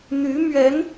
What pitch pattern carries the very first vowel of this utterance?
rising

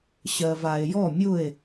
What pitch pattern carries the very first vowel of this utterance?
low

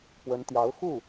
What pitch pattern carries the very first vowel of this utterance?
rising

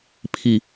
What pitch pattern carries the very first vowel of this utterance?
low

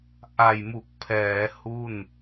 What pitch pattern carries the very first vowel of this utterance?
low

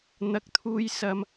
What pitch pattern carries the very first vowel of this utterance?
rising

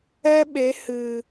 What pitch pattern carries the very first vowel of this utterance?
high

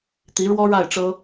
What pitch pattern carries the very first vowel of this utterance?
rising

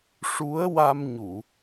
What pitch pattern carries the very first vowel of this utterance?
rising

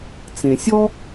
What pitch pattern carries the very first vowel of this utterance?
low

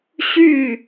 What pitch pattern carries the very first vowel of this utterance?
falling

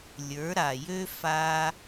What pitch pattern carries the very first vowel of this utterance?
rising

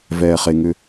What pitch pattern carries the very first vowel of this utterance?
low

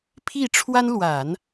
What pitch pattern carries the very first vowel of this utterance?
falling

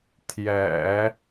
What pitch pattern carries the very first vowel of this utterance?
low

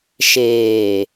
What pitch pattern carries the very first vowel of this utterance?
low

